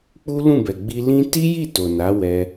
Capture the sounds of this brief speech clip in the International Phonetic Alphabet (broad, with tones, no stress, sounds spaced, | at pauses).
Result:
k͡p u˦ l ũ˦˨ b ɛ˨ ɡ͡b i˧ l ĩ˦ t i˦ j i˦˨ t o˨ n a˨˦ w ɛ˧